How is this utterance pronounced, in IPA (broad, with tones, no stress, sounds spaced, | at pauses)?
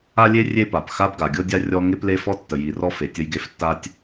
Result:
a˥ lʲ e˥ rʲ e˥ p a˩ p x a˥ b ɡ a˩ ɡʲ ɤ˥ dʲ a˥ rʲ ɔ˥ ŋ e˥ p l e˥ f ɔ˥ tː ə˩ j i˩ r ɔ˥ f e˩ tʲ ə˥ j ɡ e˥ f tː a˥ tʲ